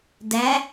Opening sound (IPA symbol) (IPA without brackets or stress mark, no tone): d